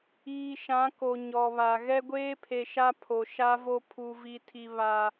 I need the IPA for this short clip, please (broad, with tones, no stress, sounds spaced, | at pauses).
iː˨ ʃ ã˨˦ k o˨ ɲ ɔ˨ β a˨ ɣ ɛ˦ ɡʷ eː˦ pʰ e˨ ʃ a˦ pʰ o˨ ʃ a˦ v o˦ pʰ u˦ v i˦ tʰ i˦ β a˦